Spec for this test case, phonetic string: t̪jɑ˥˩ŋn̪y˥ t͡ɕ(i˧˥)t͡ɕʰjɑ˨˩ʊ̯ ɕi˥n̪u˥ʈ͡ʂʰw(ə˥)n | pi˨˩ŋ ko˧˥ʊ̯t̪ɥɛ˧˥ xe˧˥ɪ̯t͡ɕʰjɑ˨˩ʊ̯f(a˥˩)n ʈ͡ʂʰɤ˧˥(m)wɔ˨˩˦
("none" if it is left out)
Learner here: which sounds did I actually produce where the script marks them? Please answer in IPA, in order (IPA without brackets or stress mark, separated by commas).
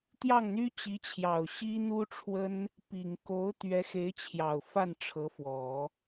i˧˥, ə˥, a˥˩, f